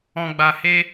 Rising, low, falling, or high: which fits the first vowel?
low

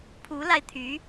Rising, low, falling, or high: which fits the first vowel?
rising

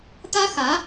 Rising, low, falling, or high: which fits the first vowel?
high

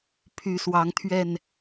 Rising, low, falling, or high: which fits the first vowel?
rising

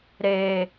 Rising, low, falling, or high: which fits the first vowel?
low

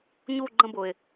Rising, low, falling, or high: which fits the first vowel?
falling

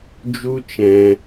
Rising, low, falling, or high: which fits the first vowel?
high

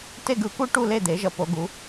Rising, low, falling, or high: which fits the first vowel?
falling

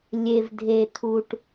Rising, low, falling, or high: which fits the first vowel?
low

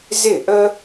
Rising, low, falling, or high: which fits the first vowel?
falling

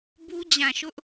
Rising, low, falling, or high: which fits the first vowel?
high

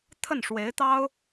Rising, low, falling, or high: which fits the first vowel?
falling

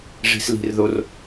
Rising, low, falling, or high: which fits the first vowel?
low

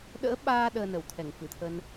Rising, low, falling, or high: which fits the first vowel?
rising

